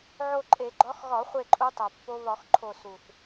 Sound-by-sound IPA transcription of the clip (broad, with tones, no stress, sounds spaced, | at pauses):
ʕ o˦˨ ǃʼ e˧˩˧ ɡ͡ǃ ɒ˨˦ x ɣ ɒ˧˩˧ χʷ e˦˨ ǃʼ u˨˦ tˤ o˨˩ pː o˦˥ β ɒ˧˩˧ x ǃʰ o˦˨ s u˨˩ θ